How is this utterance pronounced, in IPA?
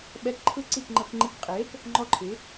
ɓɛ˦˥kǃʰɯ˥˧ǀi˥˧k ŋ͡ǃɤ˧kŋ͡ǃi˧k qʼeː˨˥k | ŋ͡ǃɔ˥˧ǃʰɯ˨˥

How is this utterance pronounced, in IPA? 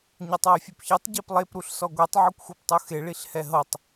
ɲɛtˤwefʲupçetˤ ɟɛplˠep ɾuɬsɔɡʷɛtˤ ʕukʷxuptˤuxe ɭiɬhɛɦɤtˤ

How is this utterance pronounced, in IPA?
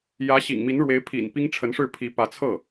jä˧˥ɕḭ˨˩ŋmi˧˥n ɻwe˧˥ɪ̯pʰḭ˨˩n pi˥ŋʈ͡ʂʰə˧˥nʂɻ̩˥˩ pʰi˧˥pä˧˥t͡sʰɤ˥˩

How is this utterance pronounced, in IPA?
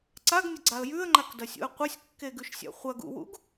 ǀaɡnʲɐɡ͡ǀaə̯ jʉə̯ŋ͡ǃakdɐsʲṵə̯ qʷɐsʲkːeɡʉʃsʲa̰ χʷɐɡṵwṵɡ

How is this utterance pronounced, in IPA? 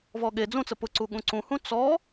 vɔɠe d͡zũt͡sə pʊǀuɠũ ǀũhũ t͡sɔ

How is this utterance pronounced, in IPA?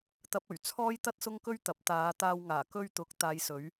t̪ɐ˧p̚ɵ˨˩ɥt͡sʰɔː˥j t̪ɐ˥t̚ sʊ˥ŋkɵ˥ɥt̪ɐ˨˥p̚ t̪aː˨˧t̪aː˧wŋaː˨˩ kɵ˧ɥt̪ʊ˨˥k̚ t̪aː˨˧jsɵ˨˥ɥ

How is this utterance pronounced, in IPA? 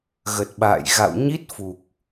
ɣə˨˩t̚ɓa̰ː˧˨j ɣa̰˧˨wɲi˦˥t̚fu˨˩k̚

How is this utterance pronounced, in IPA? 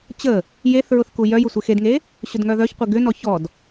t͡ɕə | jeθɹʊθ kujœjʊ sʷɪxedŋe | ɕʊdŋœðœçqʷɪ ɡʏnɔ çɔd

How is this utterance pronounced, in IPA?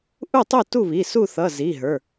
ʔu˥˨tˤu˥˨tu˥˨βi˩˧˩ su˥˨θʌ˩˧˩ zi˩˧˩ɦə˞˩˧˩

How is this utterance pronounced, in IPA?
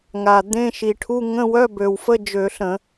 ŋa˨˩ d̪ẽ˧˥˧ʃi˨˩ʈʰu˧˥˧ ŋə̃˧˥˧wœ˧˥˧bø˨˩wfə˧˥˧ d͡ʒø˧˩˧ɬə̃˧˩˧

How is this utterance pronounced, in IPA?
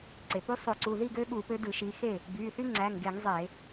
ǀe˩ py˦sˤø˧˩˧ǀu˩˧˩ ði˥˨ɡø˦ ɠu˧˩˧pø˨˦ dɯ˧˩˧ʃi˨˦xe˥˨ | by˩˧˩θy˦ ŋ͡ǀæ˩˧˩ŋɡe˧˩˧ŋ zˤe˧˩˧

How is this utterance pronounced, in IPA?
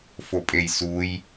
fopʼejsuj

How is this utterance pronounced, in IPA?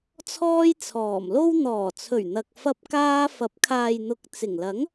t͡sʰɔː˥jt͡sʰɔː˨˩mlo˥w n̪ɔː˨˩t͡sʰɵ˨˩ɥ n̪ɐ˨k̚ fɐ˧p̚kaː˧fɐ˨˥p̚ kʰaː˨jn̪ʊ˨k̚ t͡sɪ˨˩ŋ lɐ˨˥ŋ

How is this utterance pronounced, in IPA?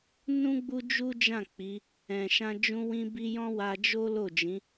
nũ˦ ɡ͡bu˦d͡ʒu˦d͡ʒã˦˨ k͡pi˨˦ | ɛ̃˨ʃã˧ d͡ʒũ˧wĩ˧bi˧ jɔ̃˦wa˧d͡ʒo˦ lo˦˨d͡ʒĩ˨˦

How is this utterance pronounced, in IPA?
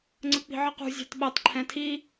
ŋ͡ǀək͡pi̤ʕʌqṳ zʲɑ̤tɓɛtˤ ǃʰɛ̃tʰi

